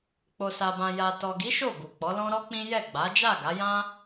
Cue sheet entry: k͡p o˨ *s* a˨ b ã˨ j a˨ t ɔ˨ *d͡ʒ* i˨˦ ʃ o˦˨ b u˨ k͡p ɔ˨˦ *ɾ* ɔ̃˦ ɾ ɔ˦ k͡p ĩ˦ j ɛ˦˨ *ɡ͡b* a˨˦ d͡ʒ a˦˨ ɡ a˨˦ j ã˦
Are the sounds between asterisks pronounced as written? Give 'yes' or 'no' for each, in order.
yes, no, no, yes

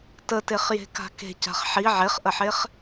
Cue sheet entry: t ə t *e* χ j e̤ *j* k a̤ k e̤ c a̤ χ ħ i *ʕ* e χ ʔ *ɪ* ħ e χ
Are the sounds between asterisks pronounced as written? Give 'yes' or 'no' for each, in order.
yes, no, yes, no

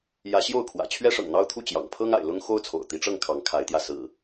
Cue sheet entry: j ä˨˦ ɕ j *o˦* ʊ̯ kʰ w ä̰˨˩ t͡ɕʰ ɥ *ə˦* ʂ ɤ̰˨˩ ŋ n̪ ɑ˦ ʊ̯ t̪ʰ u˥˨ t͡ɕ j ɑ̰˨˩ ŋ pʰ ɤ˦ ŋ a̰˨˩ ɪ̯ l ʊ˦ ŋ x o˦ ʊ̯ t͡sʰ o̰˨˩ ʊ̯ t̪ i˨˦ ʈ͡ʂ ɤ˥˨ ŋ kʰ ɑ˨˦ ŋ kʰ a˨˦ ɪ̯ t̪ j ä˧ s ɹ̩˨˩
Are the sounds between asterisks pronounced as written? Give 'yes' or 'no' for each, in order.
no, no

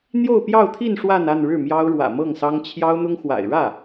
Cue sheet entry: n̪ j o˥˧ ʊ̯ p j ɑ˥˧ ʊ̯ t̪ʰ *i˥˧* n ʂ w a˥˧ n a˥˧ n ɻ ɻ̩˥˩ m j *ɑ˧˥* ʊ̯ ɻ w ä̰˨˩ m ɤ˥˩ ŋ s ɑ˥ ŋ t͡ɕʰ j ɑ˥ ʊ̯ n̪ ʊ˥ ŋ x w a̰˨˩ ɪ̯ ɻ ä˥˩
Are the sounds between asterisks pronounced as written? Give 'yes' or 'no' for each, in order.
yes, no

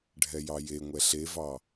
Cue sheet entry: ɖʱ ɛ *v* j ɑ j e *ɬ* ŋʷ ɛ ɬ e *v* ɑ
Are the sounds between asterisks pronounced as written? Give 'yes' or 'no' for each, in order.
no, no, yes

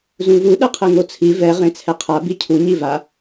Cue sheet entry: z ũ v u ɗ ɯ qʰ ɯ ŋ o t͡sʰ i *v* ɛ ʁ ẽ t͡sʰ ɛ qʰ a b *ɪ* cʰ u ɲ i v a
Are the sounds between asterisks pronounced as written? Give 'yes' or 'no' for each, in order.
yes, no

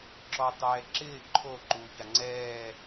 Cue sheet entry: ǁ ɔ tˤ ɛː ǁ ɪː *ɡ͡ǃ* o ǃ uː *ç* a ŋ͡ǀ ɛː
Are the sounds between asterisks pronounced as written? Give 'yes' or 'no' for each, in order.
no, yes

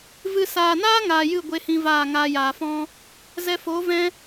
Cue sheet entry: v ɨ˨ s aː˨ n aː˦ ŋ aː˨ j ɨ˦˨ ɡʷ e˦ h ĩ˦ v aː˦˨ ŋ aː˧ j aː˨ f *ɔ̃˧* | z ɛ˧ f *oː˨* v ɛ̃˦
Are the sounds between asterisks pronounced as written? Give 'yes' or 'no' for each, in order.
no, no

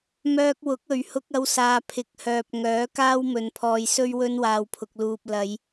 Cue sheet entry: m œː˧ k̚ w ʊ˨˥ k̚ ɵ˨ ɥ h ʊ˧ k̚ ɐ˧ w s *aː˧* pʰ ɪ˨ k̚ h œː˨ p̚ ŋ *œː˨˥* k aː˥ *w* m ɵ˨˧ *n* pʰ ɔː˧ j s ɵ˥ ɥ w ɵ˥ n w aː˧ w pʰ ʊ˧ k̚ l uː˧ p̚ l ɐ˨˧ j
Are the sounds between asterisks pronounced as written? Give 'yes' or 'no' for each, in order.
no, yes, yes, yes

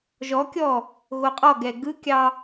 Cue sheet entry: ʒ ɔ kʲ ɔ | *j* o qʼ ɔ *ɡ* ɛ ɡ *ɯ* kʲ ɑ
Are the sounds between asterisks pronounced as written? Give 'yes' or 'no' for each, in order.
no, yes, yes

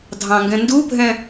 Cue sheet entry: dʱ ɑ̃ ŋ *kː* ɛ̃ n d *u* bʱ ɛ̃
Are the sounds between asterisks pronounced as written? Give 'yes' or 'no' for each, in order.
no, yes

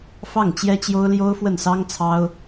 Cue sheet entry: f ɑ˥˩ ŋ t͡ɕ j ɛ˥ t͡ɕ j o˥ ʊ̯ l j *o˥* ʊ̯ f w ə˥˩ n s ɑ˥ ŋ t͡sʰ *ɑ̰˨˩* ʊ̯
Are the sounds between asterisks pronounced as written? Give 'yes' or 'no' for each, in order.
yes, no

